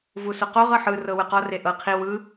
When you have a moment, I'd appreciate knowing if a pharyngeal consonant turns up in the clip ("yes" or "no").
yes